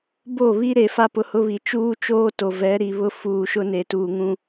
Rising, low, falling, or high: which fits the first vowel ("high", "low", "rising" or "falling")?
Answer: falling